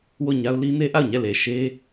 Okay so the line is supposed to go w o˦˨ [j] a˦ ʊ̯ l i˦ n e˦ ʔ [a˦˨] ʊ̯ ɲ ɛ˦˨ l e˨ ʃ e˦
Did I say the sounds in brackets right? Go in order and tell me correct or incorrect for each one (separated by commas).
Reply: incorrect, correct